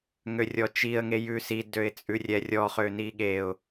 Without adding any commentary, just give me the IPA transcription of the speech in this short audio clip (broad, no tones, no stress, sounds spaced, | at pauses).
ŋ ø rʲ ɔ t͡ʃ i ə̯ ŋ e j ʉ s i d ø ɪ̯ t͡sʼ ʉ rʲ ɛ rʲ ɔ χ ø n i ɠ e ʊ̯